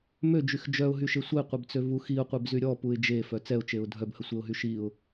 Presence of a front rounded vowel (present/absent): present